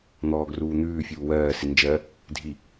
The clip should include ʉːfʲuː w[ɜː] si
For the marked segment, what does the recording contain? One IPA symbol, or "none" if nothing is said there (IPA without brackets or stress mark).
ɜː